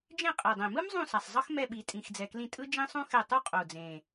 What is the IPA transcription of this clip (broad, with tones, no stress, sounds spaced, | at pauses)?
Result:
d͡ʒ ẽ˦˨ qʼ e˨˩ dˤ ẽ˨˩ m ɯ˥ m zˤ ũ˦˨ s a˨˩ sˤ zˤ ʌ˥ x m ɛ˦˨ ɓ i˨˩ tʼ ĩ˨˩ x d͡z ɛ˨˩ k l ĩ˦˨ tʼ ɯ˥ d͡ʒ ĩ˥ sˤ ũ˥ x ɛ˦˨ tˤ u˥ qʼ o˨˩ d͡z ẽ˨˩